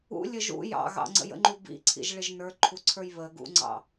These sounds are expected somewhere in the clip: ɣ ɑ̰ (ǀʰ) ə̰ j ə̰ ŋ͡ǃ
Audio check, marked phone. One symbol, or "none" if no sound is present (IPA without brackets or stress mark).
ŋ͡ǀ